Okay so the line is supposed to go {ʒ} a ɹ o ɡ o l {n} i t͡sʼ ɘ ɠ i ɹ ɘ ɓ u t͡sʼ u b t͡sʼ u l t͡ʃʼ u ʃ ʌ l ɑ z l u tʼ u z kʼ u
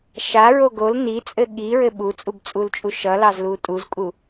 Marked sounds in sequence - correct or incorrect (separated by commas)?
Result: incorrect, correct